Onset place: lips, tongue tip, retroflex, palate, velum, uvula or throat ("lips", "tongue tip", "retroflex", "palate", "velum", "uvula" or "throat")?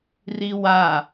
tongue tip